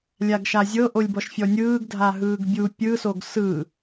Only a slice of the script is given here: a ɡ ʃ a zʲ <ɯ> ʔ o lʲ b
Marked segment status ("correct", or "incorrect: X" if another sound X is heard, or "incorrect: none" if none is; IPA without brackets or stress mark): incorrect: ɤ